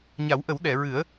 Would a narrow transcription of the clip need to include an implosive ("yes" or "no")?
yes